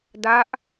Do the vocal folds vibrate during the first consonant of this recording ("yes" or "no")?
yes